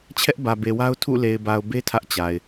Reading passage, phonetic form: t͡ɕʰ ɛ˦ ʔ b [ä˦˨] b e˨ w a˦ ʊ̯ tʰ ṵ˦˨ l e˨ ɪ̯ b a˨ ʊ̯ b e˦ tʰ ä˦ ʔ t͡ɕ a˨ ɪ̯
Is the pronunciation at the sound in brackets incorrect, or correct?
incorrect